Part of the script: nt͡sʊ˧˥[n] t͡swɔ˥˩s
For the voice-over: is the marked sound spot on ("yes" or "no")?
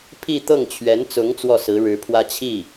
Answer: no